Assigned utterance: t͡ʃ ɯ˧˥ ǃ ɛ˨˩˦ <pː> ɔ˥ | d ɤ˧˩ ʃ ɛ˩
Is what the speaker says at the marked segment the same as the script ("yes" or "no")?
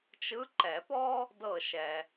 no